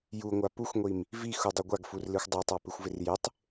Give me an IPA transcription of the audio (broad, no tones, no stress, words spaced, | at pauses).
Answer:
juŋʷa puxʷŋʷim | vixudˤɪ ɡʷaɡfurlixʷ dˤatˤapɪxʷvɪr jɪtˤ